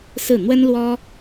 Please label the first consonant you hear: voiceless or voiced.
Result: voiceless